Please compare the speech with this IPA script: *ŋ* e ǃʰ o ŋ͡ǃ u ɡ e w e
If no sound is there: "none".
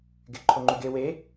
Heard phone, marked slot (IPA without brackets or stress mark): ɡ